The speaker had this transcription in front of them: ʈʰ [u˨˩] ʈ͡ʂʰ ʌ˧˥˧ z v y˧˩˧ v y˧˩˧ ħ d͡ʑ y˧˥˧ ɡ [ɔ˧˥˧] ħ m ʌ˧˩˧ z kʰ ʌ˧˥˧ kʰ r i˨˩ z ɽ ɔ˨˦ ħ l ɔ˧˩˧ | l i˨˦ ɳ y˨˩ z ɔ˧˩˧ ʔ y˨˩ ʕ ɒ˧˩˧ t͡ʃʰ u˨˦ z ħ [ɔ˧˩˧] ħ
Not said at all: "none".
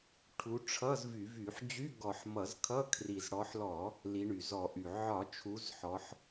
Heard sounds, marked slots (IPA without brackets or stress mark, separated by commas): u˨˦, ɔ˧˩˧, ɔ˨˦